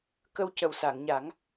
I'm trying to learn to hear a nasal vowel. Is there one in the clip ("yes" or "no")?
no